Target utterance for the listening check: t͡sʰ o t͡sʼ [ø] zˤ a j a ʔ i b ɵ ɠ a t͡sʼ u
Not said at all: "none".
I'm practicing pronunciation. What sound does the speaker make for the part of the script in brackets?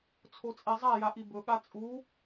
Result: e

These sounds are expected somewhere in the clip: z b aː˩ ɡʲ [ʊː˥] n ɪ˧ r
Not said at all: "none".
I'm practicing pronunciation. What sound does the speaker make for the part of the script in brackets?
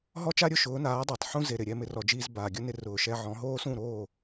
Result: ʊ˥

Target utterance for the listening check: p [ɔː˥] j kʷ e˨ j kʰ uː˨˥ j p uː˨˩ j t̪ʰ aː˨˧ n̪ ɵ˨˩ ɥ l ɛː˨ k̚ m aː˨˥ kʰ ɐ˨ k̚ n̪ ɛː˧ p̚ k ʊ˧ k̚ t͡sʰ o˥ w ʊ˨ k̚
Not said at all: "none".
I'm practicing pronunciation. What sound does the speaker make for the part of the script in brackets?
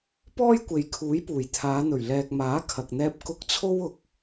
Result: ɔː˥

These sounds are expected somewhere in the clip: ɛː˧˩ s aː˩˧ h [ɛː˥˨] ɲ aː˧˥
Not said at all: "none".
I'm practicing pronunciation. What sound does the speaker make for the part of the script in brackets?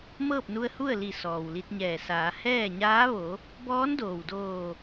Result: ɛː˥˨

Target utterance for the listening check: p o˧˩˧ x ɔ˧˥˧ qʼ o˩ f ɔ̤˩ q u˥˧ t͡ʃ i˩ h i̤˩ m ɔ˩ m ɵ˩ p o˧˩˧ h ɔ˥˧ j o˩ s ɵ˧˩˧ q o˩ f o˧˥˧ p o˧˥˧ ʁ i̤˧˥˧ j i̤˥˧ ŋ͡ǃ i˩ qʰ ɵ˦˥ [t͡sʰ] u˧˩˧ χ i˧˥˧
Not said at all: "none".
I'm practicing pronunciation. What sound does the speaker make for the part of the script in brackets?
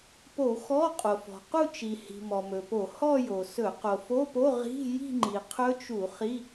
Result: t͡ʃ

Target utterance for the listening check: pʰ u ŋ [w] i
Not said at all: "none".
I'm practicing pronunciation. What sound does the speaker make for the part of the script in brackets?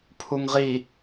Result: ʁ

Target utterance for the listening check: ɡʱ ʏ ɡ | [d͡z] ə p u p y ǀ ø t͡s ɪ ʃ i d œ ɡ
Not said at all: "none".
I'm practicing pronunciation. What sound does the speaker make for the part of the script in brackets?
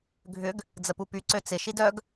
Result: d͡z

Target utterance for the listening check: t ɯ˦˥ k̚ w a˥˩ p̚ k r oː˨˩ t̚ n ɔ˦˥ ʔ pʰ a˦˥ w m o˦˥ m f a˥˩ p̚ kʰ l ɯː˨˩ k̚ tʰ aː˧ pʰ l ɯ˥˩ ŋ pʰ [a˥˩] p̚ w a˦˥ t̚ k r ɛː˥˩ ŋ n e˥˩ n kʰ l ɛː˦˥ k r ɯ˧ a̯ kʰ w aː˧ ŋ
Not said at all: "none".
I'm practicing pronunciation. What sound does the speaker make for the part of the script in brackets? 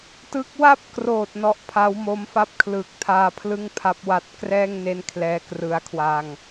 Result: a˦˥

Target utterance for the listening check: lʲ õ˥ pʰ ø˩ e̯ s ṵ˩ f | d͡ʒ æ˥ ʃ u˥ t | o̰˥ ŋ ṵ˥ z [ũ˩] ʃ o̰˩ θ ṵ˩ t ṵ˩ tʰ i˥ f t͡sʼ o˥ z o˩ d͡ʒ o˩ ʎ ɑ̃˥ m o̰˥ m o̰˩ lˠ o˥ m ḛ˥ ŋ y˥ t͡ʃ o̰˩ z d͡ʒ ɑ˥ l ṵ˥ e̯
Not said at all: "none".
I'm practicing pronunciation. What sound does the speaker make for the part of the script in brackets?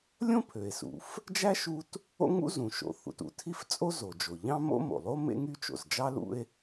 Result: ũ˩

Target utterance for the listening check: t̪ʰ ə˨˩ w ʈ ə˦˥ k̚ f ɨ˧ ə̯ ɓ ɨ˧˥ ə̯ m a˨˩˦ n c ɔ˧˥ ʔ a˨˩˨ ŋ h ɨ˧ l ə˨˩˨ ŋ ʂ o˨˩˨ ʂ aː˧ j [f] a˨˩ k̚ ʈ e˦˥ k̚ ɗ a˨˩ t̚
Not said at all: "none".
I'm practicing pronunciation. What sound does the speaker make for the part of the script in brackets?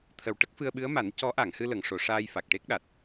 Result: f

